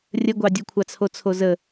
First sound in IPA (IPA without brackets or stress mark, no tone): rʲ